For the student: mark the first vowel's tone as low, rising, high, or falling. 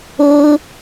high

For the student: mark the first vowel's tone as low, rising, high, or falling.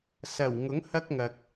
low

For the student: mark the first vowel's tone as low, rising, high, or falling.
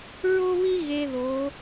high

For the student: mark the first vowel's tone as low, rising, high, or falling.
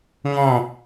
falling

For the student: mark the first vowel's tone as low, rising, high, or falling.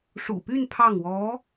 low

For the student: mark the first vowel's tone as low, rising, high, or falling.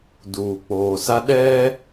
low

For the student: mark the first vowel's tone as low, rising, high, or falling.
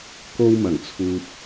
high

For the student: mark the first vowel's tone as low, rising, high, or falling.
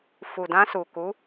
low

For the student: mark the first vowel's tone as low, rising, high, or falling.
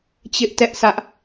high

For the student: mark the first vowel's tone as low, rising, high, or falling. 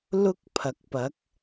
high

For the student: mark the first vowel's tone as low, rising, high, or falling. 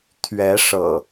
rising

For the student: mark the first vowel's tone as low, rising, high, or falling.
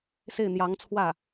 falling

